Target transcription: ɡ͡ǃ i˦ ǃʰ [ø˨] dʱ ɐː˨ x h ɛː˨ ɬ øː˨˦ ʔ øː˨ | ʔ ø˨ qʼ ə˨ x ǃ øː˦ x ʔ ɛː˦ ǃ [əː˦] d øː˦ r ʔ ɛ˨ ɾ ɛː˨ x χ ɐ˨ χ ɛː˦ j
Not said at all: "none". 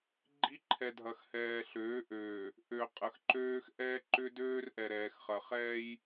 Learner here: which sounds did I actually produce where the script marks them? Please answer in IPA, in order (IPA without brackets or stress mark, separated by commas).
ɛ˨, ʏː˦